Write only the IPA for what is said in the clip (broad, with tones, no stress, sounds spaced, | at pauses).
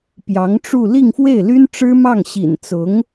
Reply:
p j ɑ˧˥ ŋ ʈ͡ʂ u˥˧ l i˥˧ ŋ f w e˥˩ ɪ̯ l y˥ n ʈ͡ʂ ɻ̩˥ m ɑ˥˩ ŋ ɕ ḭ˨˩ n t͡s ʊ˧˥ ŋ